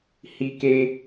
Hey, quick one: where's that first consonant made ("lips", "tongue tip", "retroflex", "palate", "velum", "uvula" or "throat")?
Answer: throat